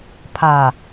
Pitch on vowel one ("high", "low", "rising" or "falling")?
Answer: low